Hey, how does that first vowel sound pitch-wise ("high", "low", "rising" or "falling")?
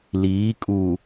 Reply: rising